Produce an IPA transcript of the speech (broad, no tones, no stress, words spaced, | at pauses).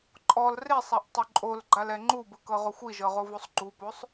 ǃʼɔl resˤaʔtˤo ǃʼolɡ͡ǃalɛ ŋ͡ǃubɯkɤʁoxʷ iʒɤʁovosˤ ɡ͡ǃuposˤ